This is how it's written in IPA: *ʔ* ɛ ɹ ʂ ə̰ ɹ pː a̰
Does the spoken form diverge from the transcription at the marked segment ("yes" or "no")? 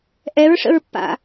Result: no